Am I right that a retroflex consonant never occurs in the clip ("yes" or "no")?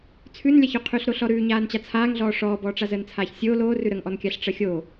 no